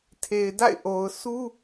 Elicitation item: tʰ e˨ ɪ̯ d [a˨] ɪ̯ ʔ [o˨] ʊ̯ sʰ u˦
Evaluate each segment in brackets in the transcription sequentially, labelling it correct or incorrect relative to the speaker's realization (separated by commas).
incorrect, correct